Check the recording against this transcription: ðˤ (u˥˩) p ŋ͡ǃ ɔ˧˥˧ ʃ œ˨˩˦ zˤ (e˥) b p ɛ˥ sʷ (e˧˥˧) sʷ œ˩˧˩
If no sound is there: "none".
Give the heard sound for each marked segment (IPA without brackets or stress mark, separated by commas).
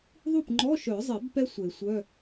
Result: u˥˩, e˨˩˦, e˨˩˦